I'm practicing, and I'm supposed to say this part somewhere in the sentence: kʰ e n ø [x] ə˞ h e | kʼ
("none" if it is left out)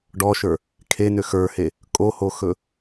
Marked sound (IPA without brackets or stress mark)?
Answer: x